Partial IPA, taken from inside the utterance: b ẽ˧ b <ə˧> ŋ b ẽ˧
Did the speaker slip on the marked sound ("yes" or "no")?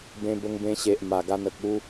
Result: no